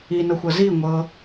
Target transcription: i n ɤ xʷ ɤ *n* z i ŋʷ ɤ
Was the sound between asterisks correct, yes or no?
no